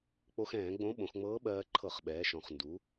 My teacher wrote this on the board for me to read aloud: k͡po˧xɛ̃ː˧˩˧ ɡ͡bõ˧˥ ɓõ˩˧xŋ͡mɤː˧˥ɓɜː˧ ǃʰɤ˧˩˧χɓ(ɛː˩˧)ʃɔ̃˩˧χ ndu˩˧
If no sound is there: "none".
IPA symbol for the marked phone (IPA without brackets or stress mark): ɛː˩˧